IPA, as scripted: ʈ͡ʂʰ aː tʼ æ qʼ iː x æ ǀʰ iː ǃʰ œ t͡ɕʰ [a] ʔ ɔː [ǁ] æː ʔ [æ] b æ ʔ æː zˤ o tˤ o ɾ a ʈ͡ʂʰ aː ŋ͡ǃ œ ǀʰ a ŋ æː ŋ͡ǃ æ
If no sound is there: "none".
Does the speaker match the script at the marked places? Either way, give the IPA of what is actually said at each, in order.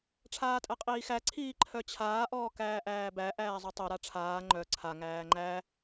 aː, k, æː

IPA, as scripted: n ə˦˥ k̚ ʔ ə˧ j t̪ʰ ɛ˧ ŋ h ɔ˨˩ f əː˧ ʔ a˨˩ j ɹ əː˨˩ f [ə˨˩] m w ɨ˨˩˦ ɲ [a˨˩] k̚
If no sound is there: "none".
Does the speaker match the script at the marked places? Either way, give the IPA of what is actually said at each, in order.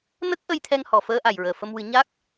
ə˧, a˦˥

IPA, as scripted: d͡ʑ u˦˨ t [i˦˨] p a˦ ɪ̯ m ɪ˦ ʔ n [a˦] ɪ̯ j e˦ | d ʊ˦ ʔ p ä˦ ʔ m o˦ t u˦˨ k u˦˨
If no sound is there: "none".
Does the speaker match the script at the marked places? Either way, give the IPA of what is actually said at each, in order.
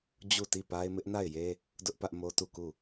i˦˨, a˦˨

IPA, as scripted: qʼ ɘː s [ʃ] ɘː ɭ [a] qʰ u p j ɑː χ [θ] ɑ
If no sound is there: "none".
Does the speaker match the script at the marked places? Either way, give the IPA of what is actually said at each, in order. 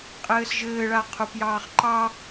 ʒ, a, ǃ

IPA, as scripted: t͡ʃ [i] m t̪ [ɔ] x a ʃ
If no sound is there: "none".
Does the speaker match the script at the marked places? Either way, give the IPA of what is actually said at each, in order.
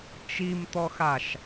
i, ɔ

